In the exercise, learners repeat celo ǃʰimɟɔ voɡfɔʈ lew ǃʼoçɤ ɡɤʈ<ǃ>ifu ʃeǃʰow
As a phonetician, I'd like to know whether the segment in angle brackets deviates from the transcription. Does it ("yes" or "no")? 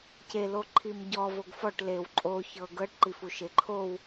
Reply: no